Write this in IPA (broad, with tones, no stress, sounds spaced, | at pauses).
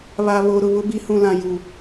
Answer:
β a˨ β o˨ ɾ ʊ˨ β ʊ˦ b i˨˦ h ũ˨ l ã˨ j u˨